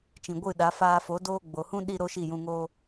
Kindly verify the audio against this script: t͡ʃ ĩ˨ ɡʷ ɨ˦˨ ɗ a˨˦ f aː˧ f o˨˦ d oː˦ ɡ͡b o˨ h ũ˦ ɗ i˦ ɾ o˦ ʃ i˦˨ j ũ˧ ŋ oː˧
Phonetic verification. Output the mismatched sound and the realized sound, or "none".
none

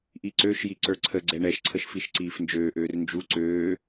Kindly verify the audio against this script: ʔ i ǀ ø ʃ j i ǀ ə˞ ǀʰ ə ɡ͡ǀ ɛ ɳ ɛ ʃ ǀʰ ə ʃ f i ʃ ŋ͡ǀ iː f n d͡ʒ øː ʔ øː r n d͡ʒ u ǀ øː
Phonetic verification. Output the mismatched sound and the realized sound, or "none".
ŋ͡ǀ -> ǀ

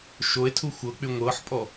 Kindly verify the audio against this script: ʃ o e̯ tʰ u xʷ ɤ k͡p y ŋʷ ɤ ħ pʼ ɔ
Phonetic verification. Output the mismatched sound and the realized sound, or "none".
none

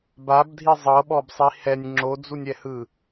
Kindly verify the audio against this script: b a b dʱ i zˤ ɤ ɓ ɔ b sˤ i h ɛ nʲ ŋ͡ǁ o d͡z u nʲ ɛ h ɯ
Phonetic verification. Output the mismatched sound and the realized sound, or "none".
none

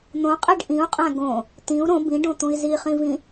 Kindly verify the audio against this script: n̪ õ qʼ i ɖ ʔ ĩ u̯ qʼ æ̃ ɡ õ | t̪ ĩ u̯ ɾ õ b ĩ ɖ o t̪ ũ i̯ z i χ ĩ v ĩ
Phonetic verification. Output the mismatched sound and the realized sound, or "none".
o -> õ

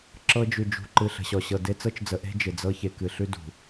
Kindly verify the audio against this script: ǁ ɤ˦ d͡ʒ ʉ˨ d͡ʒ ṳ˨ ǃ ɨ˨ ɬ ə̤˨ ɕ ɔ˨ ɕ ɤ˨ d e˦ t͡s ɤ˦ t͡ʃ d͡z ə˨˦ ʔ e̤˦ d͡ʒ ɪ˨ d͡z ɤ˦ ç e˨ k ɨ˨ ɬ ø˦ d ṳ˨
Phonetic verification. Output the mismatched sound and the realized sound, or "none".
ø˦ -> ʉ˦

